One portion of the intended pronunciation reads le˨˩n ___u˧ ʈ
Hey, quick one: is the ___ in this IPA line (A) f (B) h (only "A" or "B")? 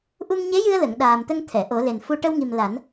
A